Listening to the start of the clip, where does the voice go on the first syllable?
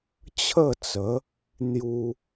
falling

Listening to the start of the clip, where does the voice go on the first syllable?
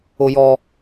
low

